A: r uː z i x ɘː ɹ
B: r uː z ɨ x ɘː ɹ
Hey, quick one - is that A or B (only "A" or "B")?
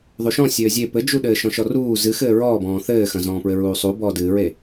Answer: B